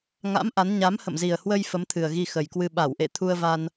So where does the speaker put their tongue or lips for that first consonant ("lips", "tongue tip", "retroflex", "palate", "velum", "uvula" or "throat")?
velum